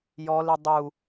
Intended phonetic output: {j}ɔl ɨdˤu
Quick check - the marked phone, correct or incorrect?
correct